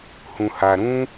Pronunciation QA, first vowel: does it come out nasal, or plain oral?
nasal